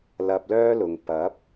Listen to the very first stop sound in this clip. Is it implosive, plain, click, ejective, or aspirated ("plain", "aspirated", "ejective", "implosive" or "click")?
plain